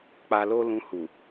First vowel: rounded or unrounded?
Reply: unrounded